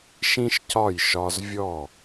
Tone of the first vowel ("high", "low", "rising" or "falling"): high